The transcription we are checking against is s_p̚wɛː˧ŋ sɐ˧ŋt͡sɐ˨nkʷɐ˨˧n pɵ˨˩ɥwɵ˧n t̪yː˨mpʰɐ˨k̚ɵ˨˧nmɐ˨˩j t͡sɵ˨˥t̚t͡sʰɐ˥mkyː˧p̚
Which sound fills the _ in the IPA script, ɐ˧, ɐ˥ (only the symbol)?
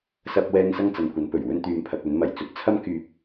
ɐ˧